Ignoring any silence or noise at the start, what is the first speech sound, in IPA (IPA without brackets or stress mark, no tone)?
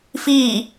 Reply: f